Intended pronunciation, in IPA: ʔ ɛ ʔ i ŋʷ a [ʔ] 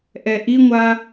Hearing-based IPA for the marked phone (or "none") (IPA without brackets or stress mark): none